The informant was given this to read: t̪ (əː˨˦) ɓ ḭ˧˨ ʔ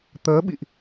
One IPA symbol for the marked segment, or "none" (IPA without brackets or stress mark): əː˨˦